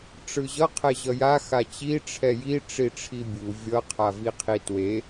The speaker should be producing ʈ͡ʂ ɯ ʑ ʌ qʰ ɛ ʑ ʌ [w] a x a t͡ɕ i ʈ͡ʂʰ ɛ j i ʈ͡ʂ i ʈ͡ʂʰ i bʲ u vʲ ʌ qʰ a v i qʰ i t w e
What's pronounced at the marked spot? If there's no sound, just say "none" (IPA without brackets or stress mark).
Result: j